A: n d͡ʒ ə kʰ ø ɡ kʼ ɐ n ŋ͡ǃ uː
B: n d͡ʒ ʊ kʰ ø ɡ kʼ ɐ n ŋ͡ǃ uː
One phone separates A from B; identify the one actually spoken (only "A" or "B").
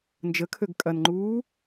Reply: A